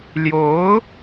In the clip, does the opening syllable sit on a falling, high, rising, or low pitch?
rising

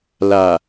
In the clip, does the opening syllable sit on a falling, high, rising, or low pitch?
low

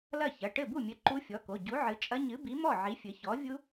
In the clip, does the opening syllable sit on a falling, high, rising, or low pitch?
falling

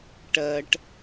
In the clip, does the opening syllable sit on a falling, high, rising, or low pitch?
high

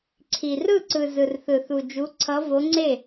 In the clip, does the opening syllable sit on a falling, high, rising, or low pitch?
low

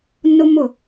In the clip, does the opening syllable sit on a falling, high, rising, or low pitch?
high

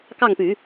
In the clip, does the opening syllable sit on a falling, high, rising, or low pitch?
falling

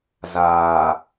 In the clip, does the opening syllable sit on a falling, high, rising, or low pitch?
low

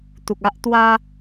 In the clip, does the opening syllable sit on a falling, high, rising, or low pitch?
low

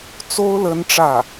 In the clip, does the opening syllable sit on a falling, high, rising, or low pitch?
high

